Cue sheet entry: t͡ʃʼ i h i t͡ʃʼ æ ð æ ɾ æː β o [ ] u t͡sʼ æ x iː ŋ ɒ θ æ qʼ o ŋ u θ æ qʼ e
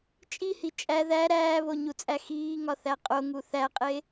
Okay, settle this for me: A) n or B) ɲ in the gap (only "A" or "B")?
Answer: B